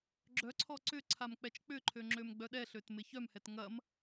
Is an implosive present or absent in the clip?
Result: present